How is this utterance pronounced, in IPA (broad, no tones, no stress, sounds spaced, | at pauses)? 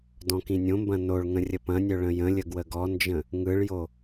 d ɔ̃ k ĩ nʲ õ m b ɐ̃ n o ɭ ŋ ə̃ rʲ ə p ɐ̃ nʲ œ ɭ ə̃ j ə̃ lʲ ə ɡ w ə ɡ ɔ n d͡ʒ ə̃ | ŋ ɯ ɭ j o